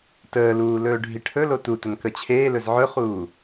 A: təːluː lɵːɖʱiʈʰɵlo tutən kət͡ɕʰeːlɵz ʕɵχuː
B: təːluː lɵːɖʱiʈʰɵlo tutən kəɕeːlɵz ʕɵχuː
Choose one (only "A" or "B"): A